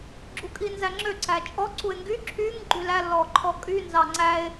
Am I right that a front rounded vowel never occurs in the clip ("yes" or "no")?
no